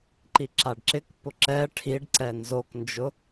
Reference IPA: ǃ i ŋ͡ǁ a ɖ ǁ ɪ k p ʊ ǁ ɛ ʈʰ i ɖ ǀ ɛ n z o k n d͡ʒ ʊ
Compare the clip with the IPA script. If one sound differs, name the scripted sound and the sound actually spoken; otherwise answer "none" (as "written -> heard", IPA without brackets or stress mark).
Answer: ŋ͡ǁ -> ǁ